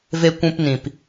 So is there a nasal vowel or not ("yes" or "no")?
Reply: yes